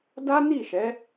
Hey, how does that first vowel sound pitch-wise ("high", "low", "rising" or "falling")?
high